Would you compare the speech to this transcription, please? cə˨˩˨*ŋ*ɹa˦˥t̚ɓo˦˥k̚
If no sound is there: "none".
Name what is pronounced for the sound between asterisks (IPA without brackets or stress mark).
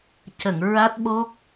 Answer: ŋ